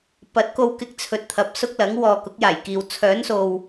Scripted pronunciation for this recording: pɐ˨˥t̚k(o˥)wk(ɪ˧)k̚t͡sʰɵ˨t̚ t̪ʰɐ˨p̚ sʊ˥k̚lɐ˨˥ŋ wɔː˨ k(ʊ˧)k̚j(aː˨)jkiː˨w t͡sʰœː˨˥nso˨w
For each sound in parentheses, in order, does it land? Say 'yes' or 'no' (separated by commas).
no, yes, no, no